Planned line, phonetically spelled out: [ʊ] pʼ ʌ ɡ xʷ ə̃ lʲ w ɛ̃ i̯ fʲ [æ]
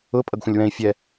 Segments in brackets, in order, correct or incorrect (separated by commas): correct, incorrect